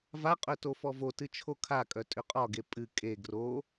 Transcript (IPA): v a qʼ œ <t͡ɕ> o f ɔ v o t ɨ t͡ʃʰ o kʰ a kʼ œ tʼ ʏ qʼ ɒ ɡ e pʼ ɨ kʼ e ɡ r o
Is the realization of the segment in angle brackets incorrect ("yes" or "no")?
yes